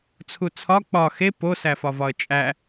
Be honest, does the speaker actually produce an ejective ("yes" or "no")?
yes